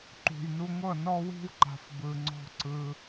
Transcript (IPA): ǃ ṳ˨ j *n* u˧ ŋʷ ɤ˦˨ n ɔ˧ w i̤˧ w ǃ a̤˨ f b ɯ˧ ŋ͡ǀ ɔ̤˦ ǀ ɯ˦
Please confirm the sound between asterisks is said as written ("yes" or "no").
yes